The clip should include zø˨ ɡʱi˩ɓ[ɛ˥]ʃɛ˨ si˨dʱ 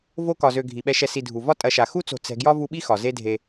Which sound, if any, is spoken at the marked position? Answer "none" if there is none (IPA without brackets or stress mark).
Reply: ɛ˨